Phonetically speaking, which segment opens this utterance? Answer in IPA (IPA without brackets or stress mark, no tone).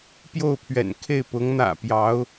p